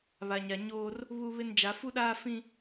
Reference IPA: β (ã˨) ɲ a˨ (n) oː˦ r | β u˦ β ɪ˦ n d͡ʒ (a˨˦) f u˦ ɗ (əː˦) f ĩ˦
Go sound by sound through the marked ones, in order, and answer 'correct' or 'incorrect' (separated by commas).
incorrect, incorrect, correct, incorrect